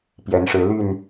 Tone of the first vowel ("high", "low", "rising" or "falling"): rising